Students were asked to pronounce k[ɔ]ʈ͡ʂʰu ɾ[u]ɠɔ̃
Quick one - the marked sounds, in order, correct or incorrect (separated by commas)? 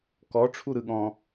correct, incorrect